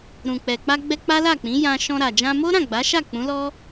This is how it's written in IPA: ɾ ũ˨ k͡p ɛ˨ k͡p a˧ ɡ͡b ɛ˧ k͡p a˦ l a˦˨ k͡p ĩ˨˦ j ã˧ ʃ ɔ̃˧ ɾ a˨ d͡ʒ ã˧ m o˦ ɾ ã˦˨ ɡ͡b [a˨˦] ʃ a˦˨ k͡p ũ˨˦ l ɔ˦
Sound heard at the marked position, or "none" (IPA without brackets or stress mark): a˨˦